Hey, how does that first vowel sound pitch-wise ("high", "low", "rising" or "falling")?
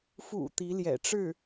low